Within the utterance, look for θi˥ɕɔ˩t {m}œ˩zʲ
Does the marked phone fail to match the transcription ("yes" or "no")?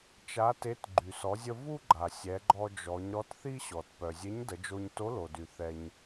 yes